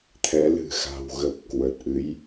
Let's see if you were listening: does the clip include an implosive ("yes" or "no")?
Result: no